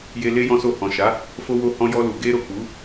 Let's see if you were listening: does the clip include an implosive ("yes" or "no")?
no